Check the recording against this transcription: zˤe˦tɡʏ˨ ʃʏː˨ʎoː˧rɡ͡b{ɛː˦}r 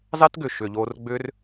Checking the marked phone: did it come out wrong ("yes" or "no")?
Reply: yes